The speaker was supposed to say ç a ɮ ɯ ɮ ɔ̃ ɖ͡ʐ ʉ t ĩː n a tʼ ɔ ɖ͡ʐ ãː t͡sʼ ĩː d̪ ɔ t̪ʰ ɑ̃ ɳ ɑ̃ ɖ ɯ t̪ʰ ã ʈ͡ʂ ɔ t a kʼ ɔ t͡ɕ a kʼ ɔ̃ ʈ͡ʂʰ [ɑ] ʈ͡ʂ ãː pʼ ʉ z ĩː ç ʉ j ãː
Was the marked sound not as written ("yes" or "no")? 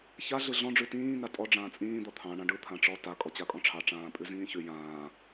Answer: no